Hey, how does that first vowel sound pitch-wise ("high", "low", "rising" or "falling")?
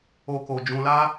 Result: low